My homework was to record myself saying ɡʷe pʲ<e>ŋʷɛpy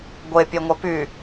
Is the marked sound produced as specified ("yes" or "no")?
yes